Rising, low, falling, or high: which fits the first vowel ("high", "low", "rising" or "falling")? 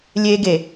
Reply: high